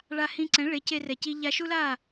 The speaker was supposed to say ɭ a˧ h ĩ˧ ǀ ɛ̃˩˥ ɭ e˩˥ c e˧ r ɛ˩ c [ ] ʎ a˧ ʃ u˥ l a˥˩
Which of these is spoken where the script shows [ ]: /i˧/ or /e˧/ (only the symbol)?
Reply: i˧